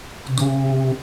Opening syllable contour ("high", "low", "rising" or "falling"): high